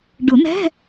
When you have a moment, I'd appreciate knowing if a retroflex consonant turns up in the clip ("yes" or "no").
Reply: yes